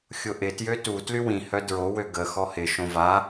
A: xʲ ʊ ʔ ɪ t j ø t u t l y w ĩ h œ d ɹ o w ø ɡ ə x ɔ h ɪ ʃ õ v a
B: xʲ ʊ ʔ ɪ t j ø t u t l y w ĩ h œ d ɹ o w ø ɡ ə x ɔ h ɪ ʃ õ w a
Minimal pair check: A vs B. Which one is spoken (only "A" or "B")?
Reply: A